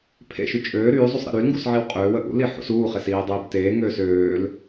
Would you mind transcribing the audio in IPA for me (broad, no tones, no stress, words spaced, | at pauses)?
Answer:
pʰḛʃy t͡ʃʼøː ɾyːzˤusˤ ɾḛɾylŋɡus ʕiwqʼøːwə ʔṵli ħṵsuːχes iːdˤiːbteːŋøːs øːl